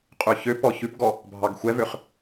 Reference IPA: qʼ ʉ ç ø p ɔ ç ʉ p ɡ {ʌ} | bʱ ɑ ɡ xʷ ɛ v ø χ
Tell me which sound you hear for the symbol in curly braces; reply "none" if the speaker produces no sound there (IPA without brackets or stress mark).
ɔ